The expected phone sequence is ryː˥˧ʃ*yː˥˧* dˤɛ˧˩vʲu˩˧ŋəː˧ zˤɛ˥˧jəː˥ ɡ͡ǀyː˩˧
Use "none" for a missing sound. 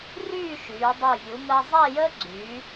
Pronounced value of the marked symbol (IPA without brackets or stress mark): yː˩˧